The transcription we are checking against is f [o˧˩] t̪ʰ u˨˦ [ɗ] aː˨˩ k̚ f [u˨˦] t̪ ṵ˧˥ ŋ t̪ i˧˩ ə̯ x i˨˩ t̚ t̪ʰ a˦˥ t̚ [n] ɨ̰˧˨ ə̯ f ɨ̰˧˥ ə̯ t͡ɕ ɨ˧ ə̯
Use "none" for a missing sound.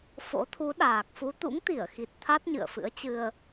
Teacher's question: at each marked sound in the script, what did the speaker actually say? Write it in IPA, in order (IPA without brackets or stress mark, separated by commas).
o̰˧˥, ɗ, u˨˦, ɲ